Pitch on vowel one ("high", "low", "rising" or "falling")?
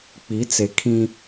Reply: rising